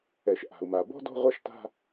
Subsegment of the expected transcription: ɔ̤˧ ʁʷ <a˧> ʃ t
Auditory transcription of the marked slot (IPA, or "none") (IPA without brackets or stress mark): a˧